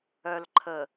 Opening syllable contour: low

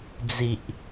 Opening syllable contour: low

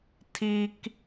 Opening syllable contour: high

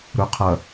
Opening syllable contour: low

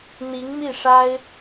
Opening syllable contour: rising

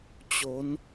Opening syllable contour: rising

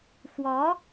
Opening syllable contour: rising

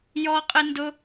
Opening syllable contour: high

